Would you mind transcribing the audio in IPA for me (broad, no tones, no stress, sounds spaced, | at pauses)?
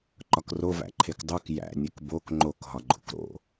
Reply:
ǃ ɒ k r o v æ̰ ǃʰ e k dˤ u k j æ̰ nʲ e k b o k ŋ͡ǃ o k ɦ ɒ ɡ͡ǃ o̰ k ɾ o̰